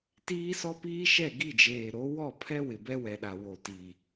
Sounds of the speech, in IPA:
tiː˦sɔ˦piː˦ʃɛ˦˨ ɡi˦˨d͡ʒeː˨ɾo˨˦ wɔ˦˨pʰɛ˦ wɪ˨bɛ˦wɛ˨ɗa˨ wo˨ti˨

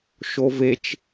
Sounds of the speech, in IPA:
ʃovet͡ʃ

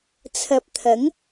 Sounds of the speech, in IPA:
t͡sʰɐ˨p̚t̪ʰɐ˨˥ŋ

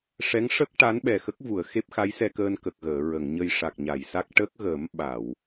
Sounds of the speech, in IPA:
ʂɛ˧˥ŋʂə˦˥k̚ ʈa˧˥nɓɛ˨˩xə˦˥k̚ vu˨˩˨ə̯xe˦˥p̚xa˧˥j sɛ˧kəː˧nkə˨˩k̚ ɣəː˨˩˨ɹə˨˩˨ŋɲə˧j ʂa˨˩k̚ɲa˨˩˨jsa˦˥k̚ ʈə˦˥k̚ɣə˨˩˦m ɓa˨˩˨w

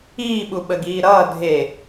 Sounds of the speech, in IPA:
iːɓuɓəɡiː ɾʌː dʱe

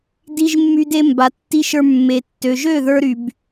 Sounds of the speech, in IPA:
di˧ʒmːy˧de˧mba˨ tːi˧ʃə˞˧ mːe˨tːø˨ʒø˦˨ ðə˞˧ɾy˨b

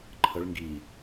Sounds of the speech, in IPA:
ǃʰəɭ ŋɡi

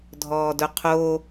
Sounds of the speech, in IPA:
dʱɔːdʊqʰo

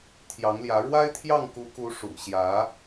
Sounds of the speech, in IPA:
t̪ʰjɑ˧˥ŋljä˧˥ ɻwa˥ɪ̯t̪ʰjɑ˥˩ŋku˧˥ku˧˥ ʂṵ˨˩ɕjä˧˥

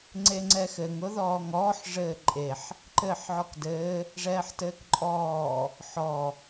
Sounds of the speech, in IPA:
ŋ͡ǀeŋ͡ǀɛxɘŋ ʊðɔːŋɔːħ ʐɘːǃʼeħ | ǃɘːħʕɔkdɘː | ʐɛːħtɘːkǃʼɔː | ħɔ

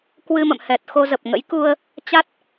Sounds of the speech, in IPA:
kwɨ˧mə̰˧˨mhɛ˨˩t̚ xo˧ zə˨˩p̚ŋə̰˧˥jku˧ə̯ | t͡ɕa˦˥t̚

